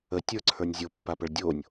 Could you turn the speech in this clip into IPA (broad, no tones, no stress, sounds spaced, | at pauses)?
ə tʲ ə˞ ǀʰ ə˞ nʲ zʲ o pː a p ə ɭ dʲ o nʲ